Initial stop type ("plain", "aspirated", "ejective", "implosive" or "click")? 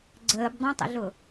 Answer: click